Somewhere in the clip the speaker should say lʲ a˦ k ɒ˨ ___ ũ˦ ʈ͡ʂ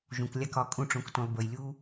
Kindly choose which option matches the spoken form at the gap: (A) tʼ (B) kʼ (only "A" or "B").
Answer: B